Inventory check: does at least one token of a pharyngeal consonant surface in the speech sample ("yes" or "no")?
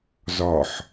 yes